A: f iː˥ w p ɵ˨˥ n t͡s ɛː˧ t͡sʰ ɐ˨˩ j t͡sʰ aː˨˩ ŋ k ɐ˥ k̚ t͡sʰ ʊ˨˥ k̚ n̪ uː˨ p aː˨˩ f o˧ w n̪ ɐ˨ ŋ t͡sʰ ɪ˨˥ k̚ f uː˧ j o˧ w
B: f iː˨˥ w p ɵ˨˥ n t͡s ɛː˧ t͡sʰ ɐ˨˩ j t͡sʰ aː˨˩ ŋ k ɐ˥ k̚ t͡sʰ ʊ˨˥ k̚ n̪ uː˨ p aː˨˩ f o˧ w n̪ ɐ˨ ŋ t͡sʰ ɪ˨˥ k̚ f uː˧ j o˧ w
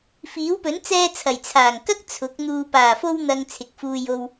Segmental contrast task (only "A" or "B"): B